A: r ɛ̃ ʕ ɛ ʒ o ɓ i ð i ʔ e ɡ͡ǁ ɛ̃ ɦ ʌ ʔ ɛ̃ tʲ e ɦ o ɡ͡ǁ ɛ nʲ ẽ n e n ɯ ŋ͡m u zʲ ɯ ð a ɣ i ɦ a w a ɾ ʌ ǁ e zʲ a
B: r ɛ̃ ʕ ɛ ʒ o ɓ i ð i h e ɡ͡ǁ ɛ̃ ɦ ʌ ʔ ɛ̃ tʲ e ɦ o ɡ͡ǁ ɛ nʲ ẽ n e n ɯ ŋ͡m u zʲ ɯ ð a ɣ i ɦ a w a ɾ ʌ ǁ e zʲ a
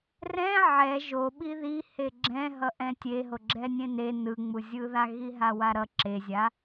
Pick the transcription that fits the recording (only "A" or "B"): B